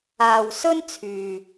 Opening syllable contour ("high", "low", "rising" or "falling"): low